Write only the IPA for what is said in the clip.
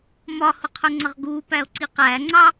m ɒ h ʊ qʰ ʊ ŋ͡ǀ ʌ ʁ ɡ u p æ o̯ ǀ i q æ ŋ͡ǀ ɑ

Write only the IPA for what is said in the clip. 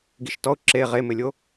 ɡ i ʃ t ɔ ʊ̯ ǁ e ʁ e m ɪ lʲ o

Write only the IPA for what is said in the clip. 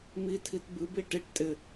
m i tʰ i t b ɨ b i ʈ i ʈ tʼ ɪ

